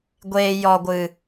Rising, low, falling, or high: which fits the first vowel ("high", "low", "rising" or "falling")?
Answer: low